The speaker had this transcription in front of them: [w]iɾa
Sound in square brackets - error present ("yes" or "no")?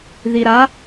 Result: yes